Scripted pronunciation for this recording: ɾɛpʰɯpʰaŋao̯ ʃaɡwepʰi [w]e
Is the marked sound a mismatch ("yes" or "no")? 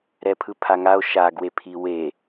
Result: no